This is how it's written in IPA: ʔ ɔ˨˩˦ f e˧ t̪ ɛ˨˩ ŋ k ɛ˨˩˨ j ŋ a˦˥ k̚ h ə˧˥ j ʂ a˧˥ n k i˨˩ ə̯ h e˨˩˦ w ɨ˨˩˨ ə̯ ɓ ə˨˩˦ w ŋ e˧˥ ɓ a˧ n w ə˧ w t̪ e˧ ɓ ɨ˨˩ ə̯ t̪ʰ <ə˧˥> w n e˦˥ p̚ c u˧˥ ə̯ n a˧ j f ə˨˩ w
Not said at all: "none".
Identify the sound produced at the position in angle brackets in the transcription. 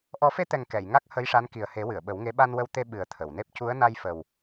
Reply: ə˨˩˨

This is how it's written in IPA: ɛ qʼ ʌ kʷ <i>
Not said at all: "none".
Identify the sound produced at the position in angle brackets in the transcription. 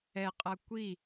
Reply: i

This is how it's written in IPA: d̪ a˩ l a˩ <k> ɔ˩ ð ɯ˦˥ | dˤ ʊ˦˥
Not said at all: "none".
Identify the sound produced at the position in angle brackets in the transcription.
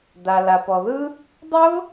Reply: p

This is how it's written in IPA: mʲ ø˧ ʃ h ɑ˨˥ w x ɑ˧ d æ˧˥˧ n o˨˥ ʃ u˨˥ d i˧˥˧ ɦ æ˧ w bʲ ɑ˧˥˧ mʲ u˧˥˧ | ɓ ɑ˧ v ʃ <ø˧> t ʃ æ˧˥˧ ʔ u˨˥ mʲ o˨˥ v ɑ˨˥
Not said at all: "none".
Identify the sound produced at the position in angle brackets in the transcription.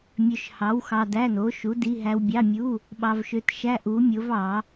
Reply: ø˧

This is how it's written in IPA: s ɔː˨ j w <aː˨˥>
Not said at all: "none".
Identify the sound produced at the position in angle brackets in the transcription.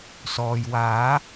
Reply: aː˨˥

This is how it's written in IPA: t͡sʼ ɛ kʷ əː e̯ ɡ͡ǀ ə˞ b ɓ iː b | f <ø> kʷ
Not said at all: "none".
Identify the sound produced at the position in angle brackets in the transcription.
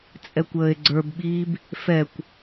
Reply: ɛ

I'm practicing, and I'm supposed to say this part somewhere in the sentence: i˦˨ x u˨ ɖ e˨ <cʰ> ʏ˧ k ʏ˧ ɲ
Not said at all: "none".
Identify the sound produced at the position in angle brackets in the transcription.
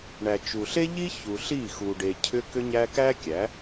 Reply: cʰ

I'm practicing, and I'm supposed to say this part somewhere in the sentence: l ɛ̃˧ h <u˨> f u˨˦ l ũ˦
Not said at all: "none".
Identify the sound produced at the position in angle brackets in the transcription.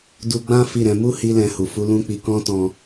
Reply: u˨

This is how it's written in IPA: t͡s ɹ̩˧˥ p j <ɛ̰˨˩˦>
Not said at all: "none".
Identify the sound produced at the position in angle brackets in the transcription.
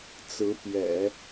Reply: ɛ̰˨˩˦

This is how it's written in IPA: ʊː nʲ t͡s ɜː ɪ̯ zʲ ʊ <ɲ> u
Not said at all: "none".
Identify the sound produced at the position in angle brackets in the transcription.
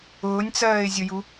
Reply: j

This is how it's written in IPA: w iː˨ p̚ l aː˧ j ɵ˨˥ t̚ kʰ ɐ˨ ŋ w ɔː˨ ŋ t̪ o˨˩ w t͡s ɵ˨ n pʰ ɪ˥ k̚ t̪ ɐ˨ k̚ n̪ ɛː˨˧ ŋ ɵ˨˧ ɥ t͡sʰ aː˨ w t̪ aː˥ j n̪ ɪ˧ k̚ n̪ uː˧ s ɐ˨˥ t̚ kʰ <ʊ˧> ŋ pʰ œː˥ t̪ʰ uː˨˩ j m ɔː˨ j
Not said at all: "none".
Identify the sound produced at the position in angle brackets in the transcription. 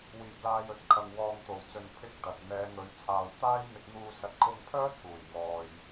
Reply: ʊ˧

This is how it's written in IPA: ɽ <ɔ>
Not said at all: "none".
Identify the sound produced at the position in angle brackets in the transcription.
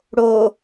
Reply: o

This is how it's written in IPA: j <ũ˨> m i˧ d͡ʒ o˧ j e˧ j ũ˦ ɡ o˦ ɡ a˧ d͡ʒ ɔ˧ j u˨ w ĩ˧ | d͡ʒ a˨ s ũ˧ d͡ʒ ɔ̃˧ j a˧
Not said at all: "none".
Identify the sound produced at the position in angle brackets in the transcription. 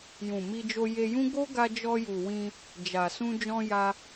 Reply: ũ˨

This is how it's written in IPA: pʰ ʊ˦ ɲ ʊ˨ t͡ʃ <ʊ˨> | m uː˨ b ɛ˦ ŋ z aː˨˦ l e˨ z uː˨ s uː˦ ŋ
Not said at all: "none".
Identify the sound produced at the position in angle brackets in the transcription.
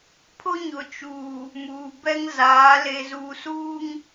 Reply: u˨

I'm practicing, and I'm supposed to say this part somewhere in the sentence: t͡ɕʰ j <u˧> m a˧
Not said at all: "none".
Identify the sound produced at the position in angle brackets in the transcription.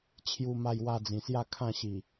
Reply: u˧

